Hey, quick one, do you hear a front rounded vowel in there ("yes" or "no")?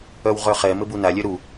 yes